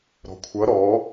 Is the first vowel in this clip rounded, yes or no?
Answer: yes